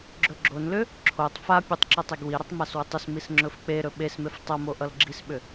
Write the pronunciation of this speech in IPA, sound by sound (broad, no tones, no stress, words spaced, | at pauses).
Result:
ɡ͡ǁɵɡ͡ǁonlʏ | ǁʰotˤ fapʲotˤ ǁɵtˤeɡwiɾʌtˤ maswʏtˤʏsmis ŋ͡ǁɵfk͡peɾɵ ɓesmef tˤʌmo ʔʌlɡ͡ǁisɓʏ